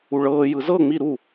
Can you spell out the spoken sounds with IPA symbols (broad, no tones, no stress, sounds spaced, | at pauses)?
u ɭ ɤː j ɯ z ɤ ŋ͡m i ɾ u